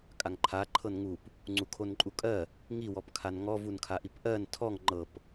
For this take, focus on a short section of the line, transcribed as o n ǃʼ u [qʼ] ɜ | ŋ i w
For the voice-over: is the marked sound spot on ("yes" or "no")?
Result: no